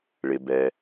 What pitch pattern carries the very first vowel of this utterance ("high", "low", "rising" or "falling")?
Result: low